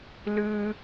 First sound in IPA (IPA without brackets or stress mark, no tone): l